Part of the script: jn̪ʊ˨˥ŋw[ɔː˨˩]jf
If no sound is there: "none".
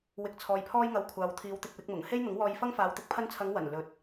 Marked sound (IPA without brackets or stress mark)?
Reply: ɔː˧